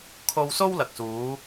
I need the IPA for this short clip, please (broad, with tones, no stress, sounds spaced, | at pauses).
kʰ o˧ w s o˥ w l ɐ˨ k̚ s uː˨˧